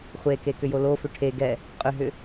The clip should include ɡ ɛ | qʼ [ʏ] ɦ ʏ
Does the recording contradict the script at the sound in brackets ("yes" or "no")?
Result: no